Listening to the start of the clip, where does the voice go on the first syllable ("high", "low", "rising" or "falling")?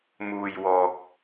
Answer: low